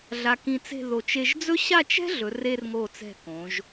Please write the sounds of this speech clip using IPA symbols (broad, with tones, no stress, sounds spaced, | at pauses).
ɮ a˧ k ĩ˧ t͡s e̤˥˧ ð o˧˩ t͡ʃ e˧ ʒ d͡z ɵ˥ ɕ a˥˧ t͡ʃ ɛ̤˥ ɮ ɵ˩˧ r e˧ r ŋ o˧˩ t͡s ɛ̤˧˩ k õ˩˧ ʒ